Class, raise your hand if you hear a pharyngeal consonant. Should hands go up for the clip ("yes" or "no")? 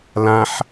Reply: yes